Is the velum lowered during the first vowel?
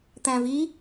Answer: yes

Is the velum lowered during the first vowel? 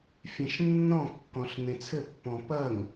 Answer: yes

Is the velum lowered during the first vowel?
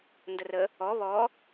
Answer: no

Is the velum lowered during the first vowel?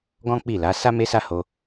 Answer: yes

